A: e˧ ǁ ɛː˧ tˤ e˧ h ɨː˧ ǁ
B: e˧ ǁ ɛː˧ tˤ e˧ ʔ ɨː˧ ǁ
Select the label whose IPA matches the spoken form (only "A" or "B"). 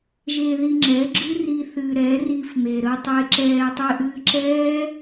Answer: B